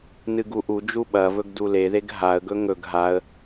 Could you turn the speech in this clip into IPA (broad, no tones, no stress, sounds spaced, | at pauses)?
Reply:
n ɨ ɡ u ʔ u d͡ʒ u ɓ ɐ v ɵ ɡ d u l e ð e ɡ ɦ a ə̯ ɡ ɵ ŋ ɵ ɡ ɦ a ə̯